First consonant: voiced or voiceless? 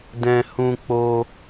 voiced